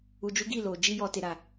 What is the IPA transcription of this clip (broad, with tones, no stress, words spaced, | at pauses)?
u˧d͡ʒu˦ɡi˦˨ lo˧ d͡ʒi˦jɔ˧te˨ ɾa˨